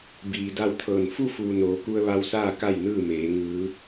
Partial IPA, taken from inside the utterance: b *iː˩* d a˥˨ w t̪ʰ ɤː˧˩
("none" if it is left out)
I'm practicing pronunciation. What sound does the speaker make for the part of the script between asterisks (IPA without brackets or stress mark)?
iː˩